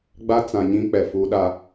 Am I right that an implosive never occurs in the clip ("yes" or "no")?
no